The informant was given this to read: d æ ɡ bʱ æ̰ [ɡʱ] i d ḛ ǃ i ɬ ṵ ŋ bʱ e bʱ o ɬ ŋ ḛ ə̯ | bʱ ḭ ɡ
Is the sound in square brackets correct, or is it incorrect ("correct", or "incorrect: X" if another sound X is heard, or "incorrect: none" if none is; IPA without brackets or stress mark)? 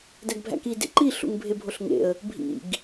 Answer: incorrect: k